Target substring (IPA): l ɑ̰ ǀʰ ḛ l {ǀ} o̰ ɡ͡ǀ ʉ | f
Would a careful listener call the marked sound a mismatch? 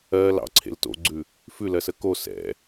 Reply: yes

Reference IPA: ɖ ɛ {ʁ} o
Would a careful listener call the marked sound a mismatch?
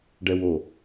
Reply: yes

